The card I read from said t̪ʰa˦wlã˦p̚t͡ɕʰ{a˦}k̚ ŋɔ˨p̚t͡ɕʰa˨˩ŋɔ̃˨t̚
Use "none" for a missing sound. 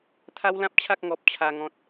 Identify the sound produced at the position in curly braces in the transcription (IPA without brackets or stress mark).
a˦